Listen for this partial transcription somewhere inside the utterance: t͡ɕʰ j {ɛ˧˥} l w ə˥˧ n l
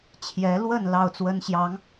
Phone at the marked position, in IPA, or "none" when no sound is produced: ɛ˧˥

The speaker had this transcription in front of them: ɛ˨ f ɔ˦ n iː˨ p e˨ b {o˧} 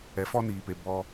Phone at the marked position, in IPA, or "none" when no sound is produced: ɔ˧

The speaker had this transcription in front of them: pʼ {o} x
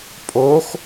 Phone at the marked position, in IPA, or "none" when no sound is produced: o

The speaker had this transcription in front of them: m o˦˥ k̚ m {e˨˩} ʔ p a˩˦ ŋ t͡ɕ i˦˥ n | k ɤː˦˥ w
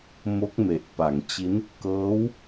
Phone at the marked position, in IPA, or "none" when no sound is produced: e˨˩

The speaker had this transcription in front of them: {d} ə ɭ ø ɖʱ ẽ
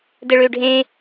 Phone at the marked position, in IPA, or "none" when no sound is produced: d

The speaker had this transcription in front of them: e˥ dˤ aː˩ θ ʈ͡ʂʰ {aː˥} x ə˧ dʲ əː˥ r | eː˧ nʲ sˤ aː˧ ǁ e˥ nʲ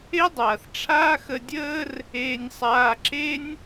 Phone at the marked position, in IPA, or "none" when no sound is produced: aː˥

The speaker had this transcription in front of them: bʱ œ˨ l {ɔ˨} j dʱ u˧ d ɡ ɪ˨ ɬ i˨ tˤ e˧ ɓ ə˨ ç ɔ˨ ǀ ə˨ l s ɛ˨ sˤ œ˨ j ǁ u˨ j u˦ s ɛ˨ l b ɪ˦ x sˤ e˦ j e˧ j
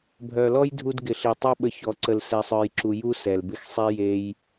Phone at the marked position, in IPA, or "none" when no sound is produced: ɔ˦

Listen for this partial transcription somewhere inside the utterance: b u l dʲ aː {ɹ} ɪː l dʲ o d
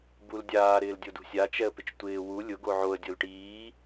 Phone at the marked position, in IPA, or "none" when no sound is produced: ɾ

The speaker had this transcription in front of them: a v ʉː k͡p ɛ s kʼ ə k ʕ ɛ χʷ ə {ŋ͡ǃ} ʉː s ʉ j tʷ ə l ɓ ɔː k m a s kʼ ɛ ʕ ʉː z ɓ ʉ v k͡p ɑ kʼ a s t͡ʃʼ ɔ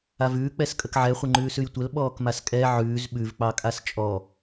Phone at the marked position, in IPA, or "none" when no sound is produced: ŋ͡ǃ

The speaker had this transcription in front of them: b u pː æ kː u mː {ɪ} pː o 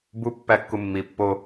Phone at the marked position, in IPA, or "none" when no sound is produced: i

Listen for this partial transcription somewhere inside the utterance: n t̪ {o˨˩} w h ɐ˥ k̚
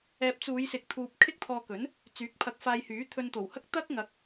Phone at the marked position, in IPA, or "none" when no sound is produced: o˨˩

